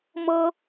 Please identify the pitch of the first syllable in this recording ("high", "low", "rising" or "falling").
high